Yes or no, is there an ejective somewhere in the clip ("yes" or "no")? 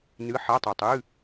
no